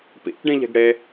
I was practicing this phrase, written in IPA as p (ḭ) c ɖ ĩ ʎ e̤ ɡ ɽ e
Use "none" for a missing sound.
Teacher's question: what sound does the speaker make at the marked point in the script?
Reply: ḭ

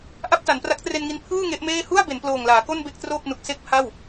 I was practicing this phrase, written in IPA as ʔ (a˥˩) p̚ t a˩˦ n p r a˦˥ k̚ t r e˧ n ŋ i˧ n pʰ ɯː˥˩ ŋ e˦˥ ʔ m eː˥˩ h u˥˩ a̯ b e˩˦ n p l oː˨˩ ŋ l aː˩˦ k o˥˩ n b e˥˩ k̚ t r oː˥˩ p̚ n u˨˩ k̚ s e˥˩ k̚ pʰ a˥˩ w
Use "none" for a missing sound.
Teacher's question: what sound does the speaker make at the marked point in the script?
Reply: a˥˩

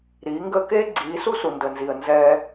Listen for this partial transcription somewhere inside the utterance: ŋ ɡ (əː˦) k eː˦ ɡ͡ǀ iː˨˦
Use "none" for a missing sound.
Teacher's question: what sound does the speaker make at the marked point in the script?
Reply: əː˦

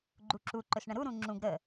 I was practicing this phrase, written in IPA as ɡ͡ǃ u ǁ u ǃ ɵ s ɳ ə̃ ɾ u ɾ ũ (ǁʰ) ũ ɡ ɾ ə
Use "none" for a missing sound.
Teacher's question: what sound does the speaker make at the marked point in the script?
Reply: ŋ͡ǁ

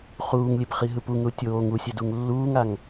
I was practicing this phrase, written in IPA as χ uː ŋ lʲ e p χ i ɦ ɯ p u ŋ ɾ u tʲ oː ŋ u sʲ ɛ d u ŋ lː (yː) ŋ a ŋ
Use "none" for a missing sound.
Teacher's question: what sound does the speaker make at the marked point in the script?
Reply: uː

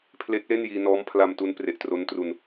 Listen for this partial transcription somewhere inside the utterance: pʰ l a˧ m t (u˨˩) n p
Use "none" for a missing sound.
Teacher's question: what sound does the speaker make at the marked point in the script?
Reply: u˦˥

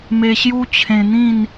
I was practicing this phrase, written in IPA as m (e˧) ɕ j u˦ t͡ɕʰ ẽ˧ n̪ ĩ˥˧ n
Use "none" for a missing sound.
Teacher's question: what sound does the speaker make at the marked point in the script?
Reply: e˧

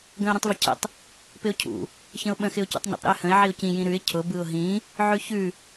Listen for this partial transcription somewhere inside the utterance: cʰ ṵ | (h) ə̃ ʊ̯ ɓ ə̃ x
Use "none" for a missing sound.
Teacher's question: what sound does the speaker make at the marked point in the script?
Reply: ç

